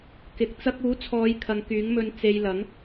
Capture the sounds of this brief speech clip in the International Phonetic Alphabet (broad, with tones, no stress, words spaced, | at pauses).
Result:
kɪ˨k̚t͡sɐ˥k̚ uː˨˥t͡sʰɔː˨˧jkʰɐ˨ŋ kyː˨˥ŋmɵ˧n t͡se˨j lɐ˨˥ŋ